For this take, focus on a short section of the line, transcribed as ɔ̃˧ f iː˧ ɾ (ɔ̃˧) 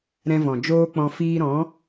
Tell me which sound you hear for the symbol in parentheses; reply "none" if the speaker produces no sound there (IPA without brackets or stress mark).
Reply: ɔ̃˨˦